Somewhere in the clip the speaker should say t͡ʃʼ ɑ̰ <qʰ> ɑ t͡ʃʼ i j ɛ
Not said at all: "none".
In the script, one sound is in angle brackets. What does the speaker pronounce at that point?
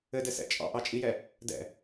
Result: ʔ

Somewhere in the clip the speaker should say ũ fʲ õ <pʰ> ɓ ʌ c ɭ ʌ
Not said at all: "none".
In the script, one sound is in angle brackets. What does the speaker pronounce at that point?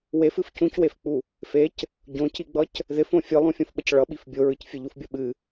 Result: f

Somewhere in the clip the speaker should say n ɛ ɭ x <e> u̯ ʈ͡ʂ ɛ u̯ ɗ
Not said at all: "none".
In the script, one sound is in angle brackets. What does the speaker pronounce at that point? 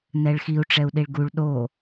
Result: i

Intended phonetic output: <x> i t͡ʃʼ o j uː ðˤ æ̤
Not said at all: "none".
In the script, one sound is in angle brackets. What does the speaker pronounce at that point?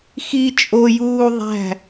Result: x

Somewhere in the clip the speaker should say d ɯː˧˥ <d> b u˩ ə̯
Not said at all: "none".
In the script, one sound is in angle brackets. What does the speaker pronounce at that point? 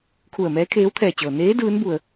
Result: n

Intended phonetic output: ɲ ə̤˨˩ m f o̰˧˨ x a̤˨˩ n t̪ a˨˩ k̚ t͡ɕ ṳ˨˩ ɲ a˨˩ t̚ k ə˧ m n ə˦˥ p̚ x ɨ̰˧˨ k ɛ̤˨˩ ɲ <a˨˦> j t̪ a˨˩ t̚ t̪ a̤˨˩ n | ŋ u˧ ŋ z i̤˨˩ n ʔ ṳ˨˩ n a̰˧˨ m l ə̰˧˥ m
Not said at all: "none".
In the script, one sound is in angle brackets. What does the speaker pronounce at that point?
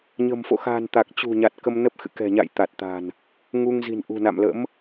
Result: a̰˧˨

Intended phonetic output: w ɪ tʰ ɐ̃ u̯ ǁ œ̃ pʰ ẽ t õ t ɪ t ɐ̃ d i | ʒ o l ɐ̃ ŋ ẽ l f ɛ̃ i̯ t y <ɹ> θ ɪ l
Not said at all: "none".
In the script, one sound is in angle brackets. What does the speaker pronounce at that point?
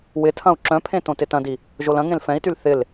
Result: l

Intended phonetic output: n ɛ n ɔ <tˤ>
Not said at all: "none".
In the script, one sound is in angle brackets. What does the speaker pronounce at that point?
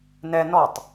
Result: tˤ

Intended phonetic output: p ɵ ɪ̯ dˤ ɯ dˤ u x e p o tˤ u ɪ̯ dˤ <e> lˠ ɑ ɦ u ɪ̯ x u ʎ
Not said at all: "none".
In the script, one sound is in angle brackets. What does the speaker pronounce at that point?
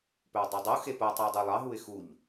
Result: y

